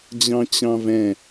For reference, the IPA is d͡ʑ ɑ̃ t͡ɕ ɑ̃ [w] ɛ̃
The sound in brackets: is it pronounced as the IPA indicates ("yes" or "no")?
no